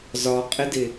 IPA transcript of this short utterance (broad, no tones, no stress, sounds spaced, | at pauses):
z ɒ qʼ ɪ d ɪ